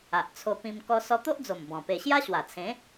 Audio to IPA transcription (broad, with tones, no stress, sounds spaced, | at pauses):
a˨ ʔ t͡sʰ o˧ p ĩ˧ m k ɔ˧ s ɔ˧ t̪ o˦ ʔ d͡z o˨˩ m b ɔ̃˨˩ p e˧ ɕ j a˦ ɕ w a˨˩ t͡sʰ ẽ˨˦